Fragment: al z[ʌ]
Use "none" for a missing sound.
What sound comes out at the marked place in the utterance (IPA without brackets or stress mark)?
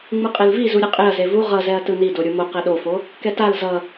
ʌ